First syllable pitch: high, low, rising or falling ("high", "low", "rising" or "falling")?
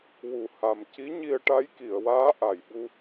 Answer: low